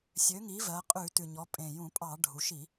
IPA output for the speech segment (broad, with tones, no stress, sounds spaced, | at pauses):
sʲ ø˩˧ ŋ i˩˧ v ɜ˩˧ qʼ ʉ˧˩˧ t ʉ˨˩ ɲ ɔ˩˧ pʼ ẽ˨˩ j ũ˧˩˧ pʼ ɑ˧˩˧ ɖʱ u˩˧ ʃ i˧˩˧